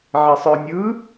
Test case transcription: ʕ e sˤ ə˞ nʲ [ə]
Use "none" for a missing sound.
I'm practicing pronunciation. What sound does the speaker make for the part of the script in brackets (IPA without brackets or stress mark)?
ɯ